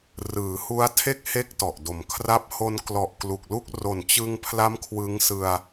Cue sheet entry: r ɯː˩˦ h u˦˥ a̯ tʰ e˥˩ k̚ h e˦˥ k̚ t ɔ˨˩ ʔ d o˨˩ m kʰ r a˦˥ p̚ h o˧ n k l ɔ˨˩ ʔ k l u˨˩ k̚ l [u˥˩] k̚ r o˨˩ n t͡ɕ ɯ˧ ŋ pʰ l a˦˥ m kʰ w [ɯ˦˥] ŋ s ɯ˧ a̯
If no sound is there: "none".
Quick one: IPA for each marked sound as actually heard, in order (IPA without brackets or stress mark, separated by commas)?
u˥˩, ɯ˦˥